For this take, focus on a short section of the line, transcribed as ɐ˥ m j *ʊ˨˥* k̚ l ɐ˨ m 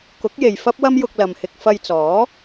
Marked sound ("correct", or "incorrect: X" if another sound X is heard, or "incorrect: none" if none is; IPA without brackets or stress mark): incorrect: ʊ˧